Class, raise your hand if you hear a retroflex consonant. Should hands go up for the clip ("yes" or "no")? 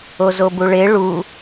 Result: yes